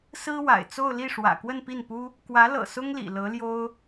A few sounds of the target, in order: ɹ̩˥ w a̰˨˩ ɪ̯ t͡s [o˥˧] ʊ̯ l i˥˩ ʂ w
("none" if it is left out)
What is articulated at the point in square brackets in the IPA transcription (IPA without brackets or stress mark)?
o˥˧